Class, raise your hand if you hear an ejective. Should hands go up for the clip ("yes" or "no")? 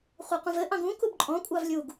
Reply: yes